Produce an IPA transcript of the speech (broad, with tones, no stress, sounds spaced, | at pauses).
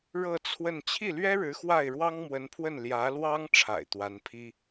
ɻ ɤ˥˧ t͡sʰ w ə˥˧ n t͡ɕʰ i˥˩ l ɥ ɛ˥ ɻ ɻ̩˧˥ x w a˥˩ ɪ̯ ɻ w ɑ˥ ŋ m w ə˧˥ n pʰ w ə˥˩ n l j ä˧˥ l w ɑ˥ ŋ ʈ͡ʂʰ a̰˨˩ ɪ̯ t̪ w a˧˥ n pʰ i˥